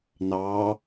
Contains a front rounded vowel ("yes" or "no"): no